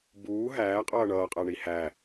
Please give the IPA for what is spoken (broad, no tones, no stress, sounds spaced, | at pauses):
b uː ɦ æː qʼ ʌː ɳ ʌː qʼ æ ɳ i h æ